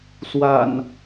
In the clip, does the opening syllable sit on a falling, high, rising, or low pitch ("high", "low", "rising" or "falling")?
low